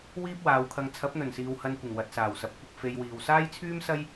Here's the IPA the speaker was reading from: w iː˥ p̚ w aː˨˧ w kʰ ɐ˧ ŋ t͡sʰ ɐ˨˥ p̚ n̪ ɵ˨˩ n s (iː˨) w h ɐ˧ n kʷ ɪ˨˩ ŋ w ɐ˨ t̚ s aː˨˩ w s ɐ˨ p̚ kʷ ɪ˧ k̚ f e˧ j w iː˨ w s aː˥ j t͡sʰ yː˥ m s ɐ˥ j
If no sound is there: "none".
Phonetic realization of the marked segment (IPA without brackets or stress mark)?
iː˨